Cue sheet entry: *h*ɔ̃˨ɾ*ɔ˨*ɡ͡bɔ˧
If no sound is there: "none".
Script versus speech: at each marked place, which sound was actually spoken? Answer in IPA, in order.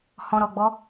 h, ɔ˨

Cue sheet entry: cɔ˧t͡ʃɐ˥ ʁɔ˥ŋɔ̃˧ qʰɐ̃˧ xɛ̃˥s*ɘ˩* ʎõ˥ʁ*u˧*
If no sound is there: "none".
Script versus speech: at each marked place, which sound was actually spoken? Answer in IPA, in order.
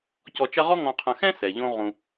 ɛ˩, ũ˧

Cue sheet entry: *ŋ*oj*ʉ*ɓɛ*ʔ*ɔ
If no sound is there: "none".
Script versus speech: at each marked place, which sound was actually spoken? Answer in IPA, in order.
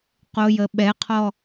q, ə, qʰ

